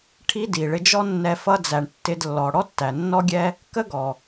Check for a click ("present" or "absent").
absent